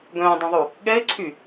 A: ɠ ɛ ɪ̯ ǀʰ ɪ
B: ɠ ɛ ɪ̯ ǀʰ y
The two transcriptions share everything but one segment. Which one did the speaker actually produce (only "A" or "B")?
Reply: B